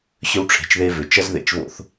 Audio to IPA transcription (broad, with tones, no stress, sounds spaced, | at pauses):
ɕ ʏ˦ w ʈ͡ʂʰ e̤˨ t͡ʃ ð e˦ v ʏ˨ t͡ʃ ʌ˦ z ð ḛ˨ t͡ʃ v o̰˦ θ